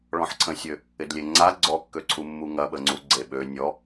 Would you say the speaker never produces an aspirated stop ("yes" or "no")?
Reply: no